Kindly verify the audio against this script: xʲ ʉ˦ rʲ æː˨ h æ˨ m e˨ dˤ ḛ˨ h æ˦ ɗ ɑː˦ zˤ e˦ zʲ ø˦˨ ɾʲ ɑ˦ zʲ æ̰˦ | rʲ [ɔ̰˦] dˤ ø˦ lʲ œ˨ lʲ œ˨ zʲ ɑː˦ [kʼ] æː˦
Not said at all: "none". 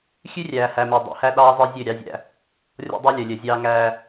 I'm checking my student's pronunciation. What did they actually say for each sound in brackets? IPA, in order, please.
ɔ̰˦, ŋ

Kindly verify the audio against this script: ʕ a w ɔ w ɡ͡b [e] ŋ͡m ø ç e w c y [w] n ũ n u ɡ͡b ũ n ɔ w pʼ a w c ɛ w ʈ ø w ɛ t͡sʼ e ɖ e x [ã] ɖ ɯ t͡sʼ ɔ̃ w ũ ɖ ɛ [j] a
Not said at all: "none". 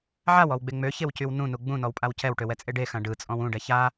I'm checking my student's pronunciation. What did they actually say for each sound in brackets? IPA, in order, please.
e, w, ã, ç

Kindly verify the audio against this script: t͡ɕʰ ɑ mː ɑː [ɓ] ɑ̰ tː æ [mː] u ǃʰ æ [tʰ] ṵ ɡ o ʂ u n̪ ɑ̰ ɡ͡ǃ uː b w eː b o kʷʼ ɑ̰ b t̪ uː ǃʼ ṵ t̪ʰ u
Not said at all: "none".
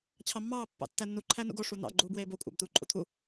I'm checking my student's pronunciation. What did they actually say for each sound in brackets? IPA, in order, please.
pː, nː, n

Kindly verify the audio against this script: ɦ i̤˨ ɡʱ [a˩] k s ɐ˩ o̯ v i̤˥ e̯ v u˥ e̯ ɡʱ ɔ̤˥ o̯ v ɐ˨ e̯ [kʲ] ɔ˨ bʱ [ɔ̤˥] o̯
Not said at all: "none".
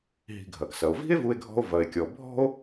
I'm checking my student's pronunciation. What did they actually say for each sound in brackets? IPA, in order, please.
ɐ˩, kʲ, ɔ̤˥

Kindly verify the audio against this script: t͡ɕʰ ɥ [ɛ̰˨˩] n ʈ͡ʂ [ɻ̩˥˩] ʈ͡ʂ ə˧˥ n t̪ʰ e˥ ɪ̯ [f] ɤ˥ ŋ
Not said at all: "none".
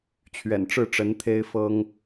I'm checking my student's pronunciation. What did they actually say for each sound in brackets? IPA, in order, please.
ɛ̰˨˩, ɻ̩˥˩, f

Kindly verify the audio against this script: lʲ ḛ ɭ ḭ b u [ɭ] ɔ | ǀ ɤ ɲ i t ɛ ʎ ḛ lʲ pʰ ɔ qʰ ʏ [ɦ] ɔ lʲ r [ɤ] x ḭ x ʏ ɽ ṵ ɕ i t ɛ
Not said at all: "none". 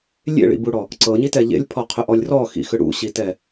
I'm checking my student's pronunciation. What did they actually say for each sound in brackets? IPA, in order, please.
ɽ, ʔ, ɔ

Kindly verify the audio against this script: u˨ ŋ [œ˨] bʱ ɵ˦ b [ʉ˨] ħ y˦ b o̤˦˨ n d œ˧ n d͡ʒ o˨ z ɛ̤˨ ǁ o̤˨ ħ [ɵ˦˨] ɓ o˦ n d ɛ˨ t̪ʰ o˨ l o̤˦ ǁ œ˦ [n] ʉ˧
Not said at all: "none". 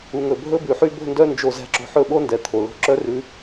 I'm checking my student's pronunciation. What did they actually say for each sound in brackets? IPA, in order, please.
ɵ˨, ʉ˨, ɵ˦˨, r

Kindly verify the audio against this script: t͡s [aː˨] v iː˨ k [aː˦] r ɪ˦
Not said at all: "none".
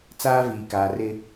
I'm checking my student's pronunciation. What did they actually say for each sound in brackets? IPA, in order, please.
aː˦, aː˨

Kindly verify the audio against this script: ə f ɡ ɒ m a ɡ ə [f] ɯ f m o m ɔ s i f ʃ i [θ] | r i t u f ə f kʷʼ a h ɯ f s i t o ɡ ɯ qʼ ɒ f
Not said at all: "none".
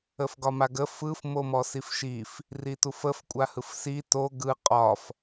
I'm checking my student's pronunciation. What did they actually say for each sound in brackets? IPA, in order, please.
f, f

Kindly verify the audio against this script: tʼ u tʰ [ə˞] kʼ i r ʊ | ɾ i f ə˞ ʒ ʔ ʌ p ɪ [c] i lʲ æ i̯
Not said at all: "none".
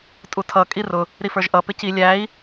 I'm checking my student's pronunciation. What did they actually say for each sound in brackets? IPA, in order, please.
ʌ, c

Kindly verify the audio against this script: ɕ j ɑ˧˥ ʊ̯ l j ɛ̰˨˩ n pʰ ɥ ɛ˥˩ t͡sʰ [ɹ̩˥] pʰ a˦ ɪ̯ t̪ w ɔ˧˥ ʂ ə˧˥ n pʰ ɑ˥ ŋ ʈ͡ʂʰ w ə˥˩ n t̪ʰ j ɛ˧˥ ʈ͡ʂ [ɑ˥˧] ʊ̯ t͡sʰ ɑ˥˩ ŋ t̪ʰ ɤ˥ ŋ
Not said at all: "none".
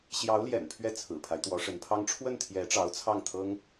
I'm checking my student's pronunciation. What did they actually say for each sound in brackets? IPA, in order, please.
ɹ̩˨˩, ɑ˧˥

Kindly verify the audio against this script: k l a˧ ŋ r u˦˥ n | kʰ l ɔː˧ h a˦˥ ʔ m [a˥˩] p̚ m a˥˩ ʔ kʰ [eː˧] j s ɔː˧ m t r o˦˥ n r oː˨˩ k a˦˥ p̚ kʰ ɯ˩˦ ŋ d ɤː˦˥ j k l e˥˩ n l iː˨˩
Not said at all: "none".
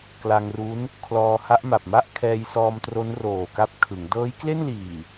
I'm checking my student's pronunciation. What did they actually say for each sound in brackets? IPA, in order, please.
a˨˩, ɛː˧

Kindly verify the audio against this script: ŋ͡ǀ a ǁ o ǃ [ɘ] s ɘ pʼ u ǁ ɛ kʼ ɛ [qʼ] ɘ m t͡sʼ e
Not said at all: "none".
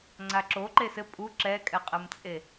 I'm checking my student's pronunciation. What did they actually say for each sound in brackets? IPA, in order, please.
e, qʼ

